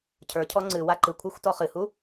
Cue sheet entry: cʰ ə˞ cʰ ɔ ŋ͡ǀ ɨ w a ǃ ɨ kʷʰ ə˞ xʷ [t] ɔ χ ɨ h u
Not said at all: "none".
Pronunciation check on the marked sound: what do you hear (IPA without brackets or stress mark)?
t